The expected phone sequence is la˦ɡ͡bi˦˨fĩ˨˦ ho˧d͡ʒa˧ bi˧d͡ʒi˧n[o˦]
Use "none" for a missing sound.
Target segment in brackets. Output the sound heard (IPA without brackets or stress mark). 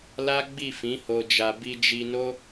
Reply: o˦